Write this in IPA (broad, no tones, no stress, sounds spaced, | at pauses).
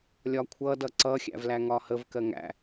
lʲ ɒ kʷʰ ʌ d ʌ ǀ ʌ xʲ æ̰ v l æ ŋ ɒ h ə v k ɜ ŋ æ̰